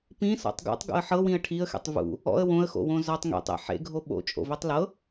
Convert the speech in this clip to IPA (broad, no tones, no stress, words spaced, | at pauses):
pĩsɔ̰tˤ ɡo̰tˤɡo̰ə̯ ħɤwĩə̯ ʈʰiə̯xḛtˤ vṵ | ɔ̰ə̯ wõə̯xo̰wõ zɔtˤ ŋḛtˤḛ ħḛɡʱo ɓo̰t͡ʃʼo̰vetˤ lɤ